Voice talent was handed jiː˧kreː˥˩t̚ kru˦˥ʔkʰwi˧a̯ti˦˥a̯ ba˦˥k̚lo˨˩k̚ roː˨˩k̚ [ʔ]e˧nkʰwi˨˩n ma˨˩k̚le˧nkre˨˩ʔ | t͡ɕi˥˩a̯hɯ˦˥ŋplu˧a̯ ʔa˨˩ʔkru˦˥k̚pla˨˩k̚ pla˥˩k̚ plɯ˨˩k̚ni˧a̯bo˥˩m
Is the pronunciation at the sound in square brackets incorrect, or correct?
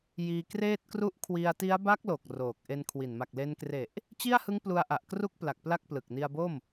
correct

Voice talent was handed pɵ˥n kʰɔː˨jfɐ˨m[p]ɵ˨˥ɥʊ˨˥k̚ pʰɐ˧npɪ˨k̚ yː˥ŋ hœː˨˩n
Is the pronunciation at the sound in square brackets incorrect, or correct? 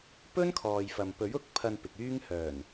correct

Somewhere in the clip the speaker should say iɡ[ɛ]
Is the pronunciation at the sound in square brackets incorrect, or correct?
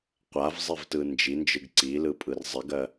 incorrect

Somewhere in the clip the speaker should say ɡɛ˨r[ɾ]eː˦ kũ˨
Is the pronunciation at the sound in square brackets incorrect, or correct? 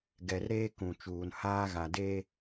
correct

